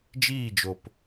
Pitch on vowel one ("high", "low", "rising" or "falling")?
falling